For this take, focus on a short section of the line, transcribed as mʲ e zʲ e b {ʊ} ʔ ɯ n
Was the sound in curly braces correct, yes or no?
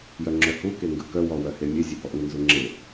no